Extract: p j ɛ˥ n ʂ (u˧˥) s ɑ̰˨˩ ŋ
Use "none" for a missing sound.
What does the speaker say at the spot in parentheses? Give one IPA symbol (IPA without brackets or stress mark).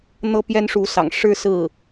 u˧˥